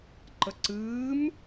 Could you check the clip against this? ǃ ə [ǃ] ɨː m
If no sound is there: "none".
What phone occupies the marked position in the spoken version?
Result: ǀ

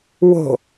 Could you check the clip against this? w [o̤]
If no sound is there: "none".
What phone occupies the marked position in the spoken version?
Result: o̤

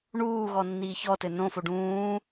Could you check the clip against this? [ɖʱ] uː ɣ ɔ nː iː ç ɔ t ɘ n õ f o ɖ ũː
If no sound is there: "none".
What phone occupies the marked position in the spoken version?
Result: ɳ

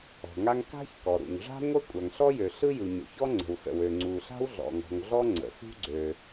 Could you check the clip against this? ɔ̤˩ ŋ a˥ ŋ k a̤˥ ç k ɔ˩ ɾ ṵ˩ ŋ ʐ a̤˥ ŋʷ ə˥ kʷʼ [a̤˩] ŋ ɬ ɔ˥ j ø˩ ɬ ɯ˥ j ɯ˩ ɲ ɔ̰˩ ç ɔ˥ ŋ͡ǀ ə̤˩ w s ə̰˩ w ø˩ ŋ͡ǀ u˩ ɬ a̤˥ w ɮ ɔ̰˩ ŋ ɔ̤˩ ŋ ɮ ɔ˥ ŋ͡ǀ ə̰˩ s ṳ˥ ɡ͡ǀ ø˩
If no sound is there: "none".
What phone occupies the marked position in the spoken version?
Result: a˩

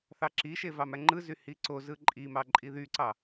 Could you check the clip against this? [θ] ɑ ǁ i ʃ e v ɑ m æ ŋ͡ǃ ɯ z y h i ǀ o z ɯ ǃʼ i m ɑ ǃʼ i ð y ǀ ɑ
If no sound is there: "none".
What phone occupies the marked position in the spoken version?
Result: θ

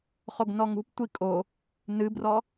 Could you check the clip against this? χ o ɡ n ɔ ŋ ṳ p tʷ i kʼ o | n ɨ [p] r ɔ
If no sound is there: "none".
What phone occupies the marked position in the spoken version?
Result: b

